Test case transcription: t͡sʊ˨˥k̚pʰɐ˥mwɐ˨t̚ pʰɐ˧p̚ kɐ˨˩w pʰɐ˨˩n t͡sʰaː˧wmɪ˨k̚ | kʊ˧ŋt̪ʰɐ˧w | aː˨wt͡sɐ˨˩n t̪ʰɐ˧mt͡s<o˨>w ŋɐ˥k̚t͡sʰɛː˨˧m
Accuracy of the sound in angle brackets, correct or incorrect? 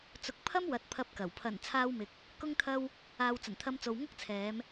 correct